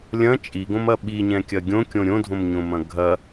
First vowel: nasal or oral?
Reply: nasal